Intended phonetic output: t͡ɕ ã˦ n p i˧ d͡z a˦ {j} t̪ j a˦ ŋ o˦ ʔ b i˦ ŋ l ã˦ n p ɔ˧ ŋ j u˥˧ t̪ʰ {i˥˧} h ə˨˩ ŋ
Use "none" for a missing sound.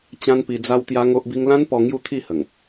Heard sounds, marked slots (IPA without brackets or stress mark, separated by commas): w, i˥˧